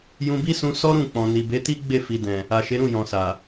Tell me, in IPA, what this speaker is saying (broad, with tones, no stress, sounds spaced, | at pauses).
j ũ˧ b i˦ s ũ˧ s ɔ˦ ɾ ũ˦˨ k͡p ɔ̃˨ n i˨ b e˨˦ t i˦ ɡ͡b e˦˨ f i˨ d ɛ̃˨ | a˨ ʃ e˨˦ ɾ ũ˦˨ j ɔ̃˨ s a˨